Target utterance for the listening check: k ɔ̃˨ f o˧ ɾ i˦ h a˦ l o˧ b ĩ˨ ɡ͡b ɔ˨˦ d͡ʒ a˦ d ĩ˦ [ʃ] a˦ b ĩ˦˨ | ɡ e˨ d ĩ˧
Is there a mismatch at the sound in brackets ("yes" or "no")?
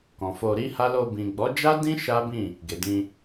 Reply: no